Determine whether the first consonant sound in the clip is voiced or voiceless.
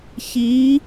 voiceless